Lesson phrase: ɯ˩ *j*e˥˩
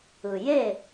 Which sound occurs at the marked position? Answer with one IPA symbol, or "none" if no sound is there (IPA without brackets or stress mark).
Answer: j